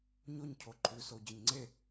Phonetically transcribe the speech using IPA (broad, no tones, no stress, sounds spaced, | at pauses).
ɲ o ɲ cʰ o ǃʰ ʉ s o ɟ ɐ ɲ ŋ͡ǀ e